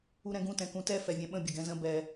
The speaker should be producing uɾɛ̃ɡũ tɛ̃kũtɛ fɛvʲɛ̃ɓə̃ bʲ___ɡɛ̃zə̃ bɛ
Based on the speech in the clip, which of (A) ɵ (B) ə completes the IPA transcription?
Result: B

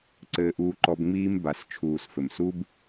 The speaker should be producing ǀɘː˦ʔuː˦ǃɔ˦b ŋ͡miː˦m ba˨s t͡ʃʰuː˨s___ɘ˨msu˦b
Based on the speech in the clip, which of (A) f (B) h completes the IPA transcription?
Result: A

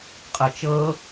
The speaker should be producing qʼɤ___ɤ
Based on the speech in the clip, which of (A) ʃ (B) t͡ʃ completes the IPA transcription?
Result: B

